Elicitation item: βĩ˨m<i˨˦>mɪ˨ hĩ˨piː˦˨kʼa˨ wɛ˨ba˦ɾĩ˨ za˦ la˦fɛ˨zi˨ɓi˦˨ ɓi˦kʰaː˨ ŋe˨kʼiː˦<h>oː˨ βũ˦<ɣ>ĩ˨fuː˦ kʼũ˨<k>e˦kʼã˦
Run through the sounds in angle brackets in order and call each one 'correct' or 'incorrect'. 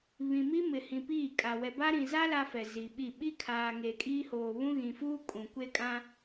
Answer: incorrect: i˦, correct, correct, incorrect: kʷ

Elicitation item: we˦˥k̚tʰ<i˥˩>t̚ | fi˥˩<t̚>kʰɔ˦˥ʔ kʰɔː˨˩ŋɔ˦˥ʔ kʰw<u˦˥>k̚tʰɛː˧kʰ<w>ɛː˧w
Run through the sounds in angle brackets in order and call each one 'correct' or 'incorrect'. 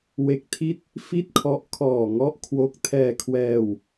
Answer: correct, correct, incorrect: o˦˥, correct

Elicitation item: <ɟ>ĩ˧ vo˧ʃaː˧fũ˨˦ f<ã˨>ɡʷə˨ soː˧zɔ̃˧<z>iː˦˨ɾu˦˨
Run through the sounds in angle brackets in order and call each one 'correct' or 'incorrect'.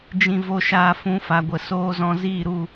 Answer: incorrect: d͡ʒ, incorrect: a˨, correct

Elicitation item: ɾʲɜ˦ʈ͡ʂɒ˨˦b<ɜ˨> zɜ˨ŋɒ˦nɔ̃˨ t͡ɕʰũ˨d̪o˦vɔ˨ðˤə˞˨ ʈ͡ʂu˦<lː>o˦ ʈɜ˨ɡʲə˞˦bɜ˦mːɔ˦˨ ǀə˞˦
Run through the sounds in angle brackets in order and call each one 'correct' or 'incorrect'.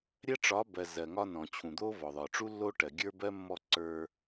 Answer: correct, correct

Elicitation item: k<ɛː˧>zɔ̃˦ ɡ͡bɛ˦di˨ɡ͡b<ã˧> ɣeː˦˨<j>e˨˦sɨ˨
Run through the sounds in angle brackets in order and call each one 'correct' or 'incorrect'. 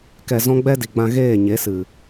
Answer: incorrect: ɛ˧, correct, incorrect: ɲ

